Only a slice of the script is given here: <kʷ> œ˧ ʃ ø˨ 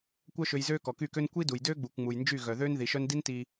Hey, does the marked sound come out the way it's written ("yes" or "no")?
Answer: yes